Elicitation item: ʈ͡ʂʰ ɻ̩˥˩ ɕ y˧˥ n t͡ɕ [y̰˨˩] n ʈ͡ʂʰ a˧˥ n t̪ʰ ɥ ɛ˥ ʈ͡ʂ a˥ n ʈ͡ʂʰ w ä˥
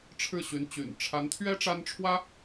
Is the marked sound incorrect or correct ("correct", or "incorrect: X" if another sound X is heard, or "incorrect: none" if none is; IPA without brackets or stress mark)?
correct